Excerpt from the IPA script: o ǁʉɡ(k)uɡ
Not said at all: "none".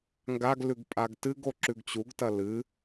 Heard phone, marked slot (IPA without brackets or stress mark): t͡ɕ